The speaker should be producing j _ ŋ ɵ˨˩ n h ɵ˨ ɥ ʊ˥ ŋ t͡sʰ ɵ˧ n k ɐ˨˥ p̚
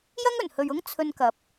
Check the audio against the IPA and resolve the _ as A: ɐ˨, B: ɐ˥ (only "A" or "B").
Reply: B